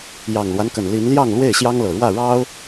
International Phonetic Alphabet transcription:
j ɑ˨˩ ŋ l w a˦ n k ə˨˩ n l i˨˦ n l j ɑ˥˨ ŋ l w e˥˨ ɪ̯ ɕ j ɑ˦ ŋ l ɤ˨˩ ɻ w ä˥˨ ɻ ɑ˦ ʊ̯

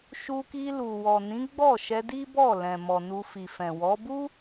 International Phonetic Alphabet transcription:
ʃ u˧ k i˧ l u˨ w ɔ˨ n ĩ˨˦ ɡ͡b ɔ˦˨ ʃ ɛ˧ d i˦ b ɔ˦˨ l ɛ̃˨ m ɔ˨ n u˧ f i˨ f ɛ̃˨ w ɔ˨˦ b u˦

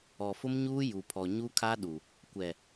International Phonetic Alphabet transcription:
ɔ˨ f ʊ˦ m ɲ uː˦ j u˨ pʰ ɔ˨ ɲ u˦ kʰ a˦ ɗ u˨ | kʷ ɛ˨

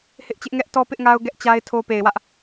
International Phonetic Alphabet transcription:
h ɪ˦ ʔ t͡ɕ ɪ˦ ʔ ŋ ɛ˦ ʔ t ɔ˦ p ɪ˦ ʔ ŋ a˦ ʊ̯ ɡ ɛ˦ ʔ t͡ɕ a˦ ɪ̯ tʰ o˦ p e˨ ɪ̯ w ä˦ ʔ

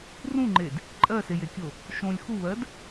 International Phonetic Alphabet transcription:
r ũ ŋ͡ǃ e d | ǃʼ ɜ s e j e kʲ o | ʃ õ lʲ x u β ɜ d

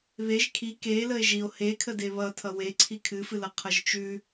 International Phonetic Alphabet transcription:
β e ʒ kʰ i k e l ə e̯ ʒ i o̯ h e kʰ ə d e β ʌ tʰ ʌ w e ǀʰ i kʰ ɨ f ɨ l ʌ qʰ ʌ ʒ t͡ʃ ʉ

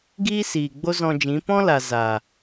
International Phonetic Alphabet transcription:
ɡ iː˦ s iː˨ ɡ͡b o˦ z ɔ̃˧ d͡ʒ ĩ˨˦ p ɔ̃˦ l a˨ z a˨

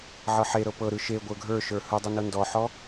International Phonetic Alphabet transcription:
ʕ ɤ ħ e ɾ ɤ p ɤ ɾ ɯ ʃ e ɡʷ ə˞ ɡʱ ə˞ ʃ ə˞ h ɯ dˤ ɯ n ɤ n d ɔ ħ ɔ

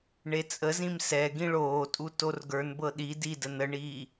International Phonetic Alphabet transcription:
ɳ e t͡sʼ ə z ĩ m s ɛ ɡ ĩ ɭ oː tʼ u t o r ɡ ə˞ n b ɤ ɗ i d i d ə n ə ɳ iː

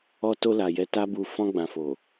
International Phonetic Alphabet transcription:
ɔ˧ t o˧ l a˨ j ɛ˨˦ t a˧ b u˨ f ɔ̃˧ ɡ͡b ã˨ f o˨

